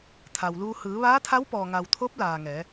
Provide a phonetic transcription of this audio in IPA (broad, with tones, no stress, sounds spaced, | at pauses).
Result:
t̪ʰ a˩ w l uː˧ h ɯː˩˧ ʋ aː˧˥ t̪ʰ a˧˥ w p ɔː˩ ŋ a˩ w t̪ʰ o˧˥ p̚ l aː˩ ŋ ɛː˩˧